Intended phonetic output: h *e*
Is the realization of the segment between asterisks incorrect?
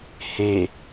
no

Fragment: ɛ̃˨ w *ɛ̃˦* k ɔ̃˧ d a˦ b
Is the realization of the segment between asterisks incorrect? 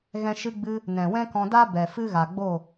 no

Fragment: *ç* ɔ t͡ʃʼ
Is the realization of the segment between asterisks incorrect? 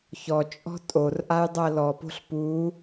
no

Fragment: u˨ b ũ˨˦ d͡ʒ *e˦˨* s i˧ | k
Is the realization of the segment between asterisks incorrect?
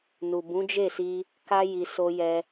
no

